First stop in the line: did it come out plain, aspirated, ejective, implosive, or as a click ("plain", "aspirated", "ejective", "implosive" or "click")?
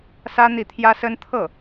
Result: aspirated